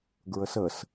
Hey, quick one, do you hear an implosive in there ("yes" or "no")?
no